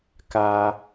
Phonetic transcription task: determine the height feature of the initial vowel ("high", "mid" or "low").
low